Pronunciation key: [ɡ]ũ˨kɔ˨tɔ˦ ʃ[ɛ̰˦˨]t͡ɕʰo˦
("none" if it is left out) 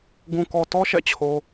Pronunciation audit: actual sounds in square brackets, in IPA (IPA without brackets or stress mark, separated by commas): ɡ, ɛ̰˦˨